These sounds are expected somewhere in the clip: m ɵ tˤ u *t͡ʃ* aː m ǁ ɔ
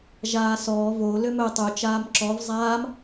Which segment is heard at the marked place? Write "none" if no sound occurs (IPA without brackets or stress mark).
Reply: t͡ʃ